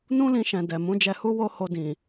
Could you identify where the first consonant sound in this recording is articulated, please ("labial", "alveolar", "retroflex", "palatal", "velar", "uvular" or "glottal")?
alveolar